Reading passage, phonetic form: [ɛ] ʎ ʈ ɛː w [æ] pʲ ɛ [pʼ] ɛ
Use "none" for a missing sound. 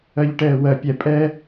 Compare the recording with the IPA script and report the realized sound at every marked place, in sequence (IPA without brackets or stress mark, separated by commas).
ɜ, ɜ, pʼ